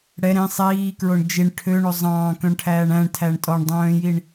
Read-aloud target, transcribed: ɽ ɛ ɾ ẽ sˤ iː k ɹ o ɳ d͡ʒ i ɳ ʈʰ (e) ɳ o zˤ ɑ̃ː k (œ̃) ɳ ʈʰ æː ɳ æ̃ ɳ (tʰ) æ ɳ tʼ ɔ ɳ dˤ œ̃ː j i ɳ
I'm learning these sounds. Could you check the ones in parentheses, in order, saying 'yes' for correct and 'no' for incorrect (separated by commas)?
no, yes, yes